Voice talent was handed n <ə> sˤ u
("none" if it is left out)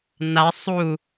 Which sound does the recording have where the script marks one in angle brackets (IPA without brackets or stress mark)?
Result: a